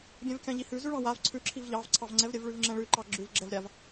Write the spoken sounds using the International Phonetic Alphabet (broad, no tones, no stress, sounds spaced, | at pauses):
ɡʲ ɛ̃ v kʲ ɑ̃ ʎ i h ʉ z ʉ ɭ ɑ̃ w a v ǀʰ ʉ ǁʰ i v ʎ ɑ v ǀʰ ɑ v ŋ͡ǀ ɛ v ɾʲ ɛ v ɭ ʉ v ŋ͡ǁ ɛ̃ ɭ ʉ ǃ ɑ ɡ͡ǁ ʉ v ɡ͡ǁ ɛ v ɾʲ a v